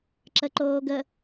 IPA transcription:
ǁəǃoːɡə

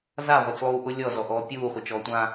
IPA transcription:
za ʁʷet͡slˠuːʔʊ lʲɔ zɔʔɔːpʲuː χʷet͡ʃɔːtʷã

